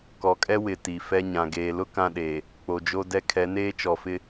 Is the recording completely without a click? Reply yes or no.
yes